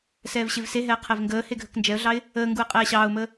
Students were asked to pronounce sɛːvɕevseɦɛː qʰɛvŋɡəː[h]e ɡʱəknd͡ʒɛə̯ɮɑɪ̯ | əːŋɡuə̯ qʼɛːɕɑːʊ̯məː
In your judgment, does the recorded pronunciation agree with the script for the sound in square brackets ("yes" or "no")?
yes